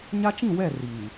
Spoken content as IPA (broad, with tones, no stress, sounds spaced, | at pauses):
ɲ a˦ t͡ʃ ĩ˦˨ w ɛ˦˨ r iː˨